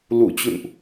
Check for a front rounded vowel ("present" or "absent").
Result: absent